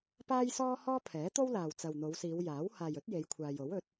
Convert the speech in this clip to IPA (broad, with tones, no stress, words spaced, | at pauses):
paː˥jsɔː˥ hɔː˥pʰɛː˨˥t̪o˥wlaː˨w t͡sɐ˨wn̪o˨˧wsiː˨˧wjaː˨˥w haː˨jɵ˨˥t̚ je˨˧jkʷʰaː˨jo˨˥w ɵ˨˥t̚